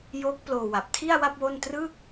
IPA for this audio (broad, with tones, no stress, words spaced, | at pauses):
joː˦˥k̚ploː˧wa˨˩p̚ tʰi˥˩a̯wa˥˩p̚ wo˥˩n trɯ˥˩k̚